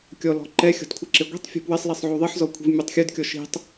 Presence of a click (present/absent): present